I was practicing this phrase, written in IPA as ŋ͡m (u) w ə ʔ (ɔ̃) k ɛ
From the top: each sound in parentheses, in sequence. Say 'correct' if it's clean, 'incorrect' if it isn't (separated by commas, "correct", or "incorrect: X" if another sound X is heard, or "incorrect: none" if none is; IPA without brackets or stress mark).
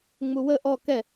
correct, incorrect: ɔ